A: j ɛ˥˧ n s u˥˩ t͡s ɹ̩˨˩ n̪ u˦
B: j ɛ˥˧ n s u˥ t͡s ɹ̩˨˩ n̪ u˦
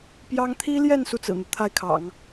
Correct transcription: A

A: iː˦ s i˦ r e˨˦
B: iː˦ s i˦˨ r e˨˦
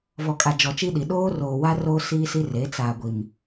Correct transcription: A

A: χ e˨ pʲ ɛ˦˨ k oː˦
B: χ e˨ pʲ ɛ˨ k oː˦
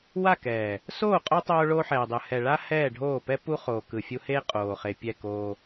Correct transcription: A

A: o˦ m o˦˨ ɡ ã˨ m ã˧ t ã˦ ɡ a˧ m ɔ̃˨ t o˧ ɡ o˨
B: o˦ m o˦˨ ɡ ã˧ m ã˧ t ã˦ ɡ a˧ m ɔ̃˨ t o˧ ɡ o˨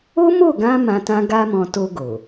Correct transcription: B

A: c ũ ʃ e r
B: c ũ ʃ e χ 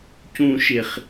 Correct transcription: B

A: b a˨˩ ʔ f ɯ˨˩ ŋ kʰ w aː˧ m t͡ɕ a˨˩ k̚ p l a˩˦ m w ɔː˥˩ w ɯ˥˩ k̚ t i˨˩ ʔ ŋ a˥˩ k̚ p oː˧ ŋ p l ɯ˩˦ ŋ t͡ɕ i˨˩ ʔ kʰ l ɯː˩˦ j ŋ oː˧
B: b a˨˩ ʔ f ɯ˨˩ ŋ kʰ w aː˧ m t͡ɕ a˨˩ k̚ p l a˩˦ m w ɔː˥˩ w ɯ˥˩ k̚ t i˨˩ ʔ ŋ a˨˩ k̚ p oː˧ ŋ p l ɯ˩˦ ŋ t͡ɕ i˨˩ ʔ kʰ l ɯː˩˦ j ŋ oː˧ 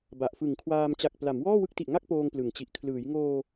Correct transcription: A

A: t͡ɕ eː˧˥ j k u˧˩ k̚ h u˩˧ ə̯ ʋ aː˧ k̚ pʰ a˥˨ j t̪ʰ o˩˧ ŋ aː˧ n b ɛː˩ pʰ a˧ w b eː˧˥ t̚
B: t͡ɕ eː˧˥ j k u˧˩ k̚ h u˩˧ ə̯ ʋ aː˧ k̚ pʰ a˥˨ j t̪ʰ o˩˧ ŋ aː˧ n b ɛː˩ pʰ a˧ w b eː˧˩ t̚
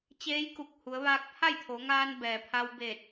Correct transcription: B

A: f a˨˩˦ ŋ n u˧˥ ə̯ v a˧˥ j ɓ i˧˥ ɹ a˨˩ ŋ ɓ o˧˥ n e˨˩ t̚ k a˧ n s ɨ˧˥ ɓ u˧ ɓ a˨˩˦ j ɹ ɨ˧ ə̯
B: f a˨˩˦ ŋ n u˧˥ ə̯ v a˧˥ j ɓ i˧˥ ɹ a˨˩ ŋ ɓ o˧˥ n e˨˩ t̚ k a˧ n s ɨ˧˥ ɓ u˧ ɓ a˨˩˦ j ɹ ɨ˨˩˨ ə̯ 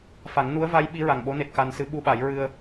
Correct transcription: A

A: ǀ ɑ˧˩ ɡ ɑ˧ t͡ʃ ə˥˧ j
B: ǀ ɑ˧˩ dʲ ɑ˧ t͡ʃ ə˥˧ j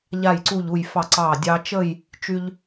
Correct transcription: B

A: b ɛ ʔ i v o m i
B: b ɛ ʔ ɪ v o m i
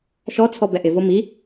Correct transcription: B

